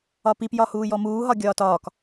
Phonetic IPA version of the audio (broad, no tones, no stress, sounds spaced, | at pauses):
ɒ p i p j ɒ h uː j ɔ m uː ɦ ɒ ɡʲ ɒː t ɒː k